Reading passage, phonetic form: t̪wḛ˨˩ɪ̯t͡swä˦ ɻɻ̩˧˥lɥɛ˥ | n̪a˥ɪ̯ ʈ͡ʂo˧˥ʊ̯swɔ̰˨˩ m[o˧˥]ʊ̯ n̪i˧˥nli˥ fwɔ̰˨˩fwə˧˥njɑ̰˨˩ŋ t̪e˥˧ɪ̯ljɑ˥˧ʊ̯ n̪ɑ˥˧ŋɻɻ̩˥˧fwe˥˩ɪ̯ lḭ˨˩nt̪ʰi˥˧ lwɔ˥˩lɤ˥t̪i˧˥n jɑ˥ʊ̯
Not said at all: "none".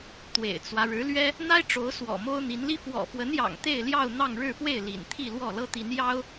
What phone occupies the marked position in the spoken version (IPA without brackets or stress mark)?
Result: o˥